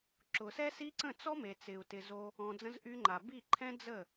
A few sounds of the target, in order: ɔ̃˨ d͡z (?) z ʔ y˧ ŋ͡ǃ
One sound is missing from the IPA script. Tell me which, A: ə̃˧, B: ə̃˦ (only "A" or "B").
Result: A